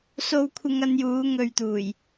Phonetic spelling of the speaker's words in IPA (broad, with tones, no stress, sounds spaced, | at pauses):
s o˧ w kʷʰ ɪ˧ ŋ ɐ˧ n j uː˨˧ ŋ ɵ˨ ɥ t̪ uː˨˩ j